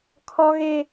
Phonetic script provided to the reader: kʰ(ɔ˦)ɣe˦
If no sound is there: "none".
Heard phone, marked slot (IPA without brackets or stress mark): ɔ˦